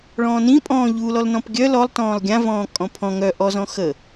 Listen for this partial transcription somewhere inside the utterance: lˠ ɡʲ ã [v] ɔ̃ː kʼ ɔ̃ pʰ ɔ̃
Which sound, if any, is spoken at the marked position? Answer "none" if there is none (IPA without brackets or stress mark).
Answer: v